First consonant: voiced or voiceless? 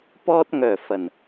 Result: voiceless